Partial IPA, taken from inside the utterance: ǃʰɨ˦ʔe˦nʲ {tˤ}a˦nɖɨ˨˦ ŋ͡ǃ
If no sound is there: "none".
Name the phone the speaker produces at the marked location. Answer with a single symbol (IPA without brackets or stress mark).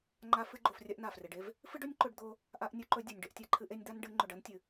d̪